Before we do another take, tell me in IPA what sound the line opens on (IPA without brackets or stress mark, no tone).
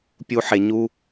pʲ